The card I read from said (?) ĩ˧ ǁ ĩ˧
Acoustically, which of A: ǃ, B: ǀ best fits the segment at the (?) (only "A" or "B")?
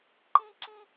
A